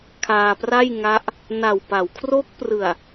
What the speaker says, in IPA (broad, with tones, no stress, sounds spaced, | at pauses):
kʰ aː˧ p r a˥˩ j ŋ a˦˥ ʔ | n a˨˩ w p a˩˦ w kʰ r o˦˥ k̚ p r ɯ˨˩ a̯